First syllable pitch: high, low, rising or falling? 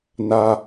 high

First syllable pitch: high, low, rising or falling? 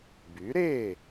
rising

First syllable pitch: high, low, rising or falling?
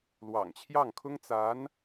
low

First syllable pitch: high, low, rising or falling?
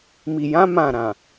low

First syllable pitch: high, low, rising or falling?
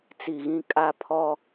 low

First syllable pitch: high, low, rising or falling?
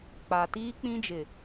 low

